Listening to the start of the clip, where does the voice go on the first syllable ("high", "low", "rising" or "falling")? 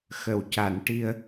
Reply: low